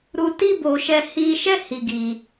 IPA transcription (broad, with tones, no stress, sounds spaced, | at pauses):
ɾ u˧ t i˦ b o˧ ʃ ɛ˧ h i˧ ʃ ɛ˦ h i˧ ɡ i˧